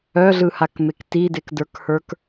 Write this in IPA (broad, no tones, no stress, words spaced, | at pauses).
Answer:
œɮɯhakmek tidekdə˞khə˞k